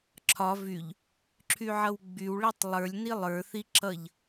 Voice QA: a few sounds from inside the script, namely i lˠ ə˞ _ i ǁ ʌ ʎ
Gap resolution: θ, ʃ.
θ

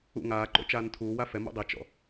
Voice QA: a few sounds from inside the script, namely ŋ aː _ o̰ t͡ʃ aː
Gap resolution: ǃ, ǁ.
ǃ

